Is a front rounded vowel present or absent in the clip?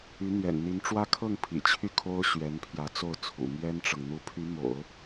present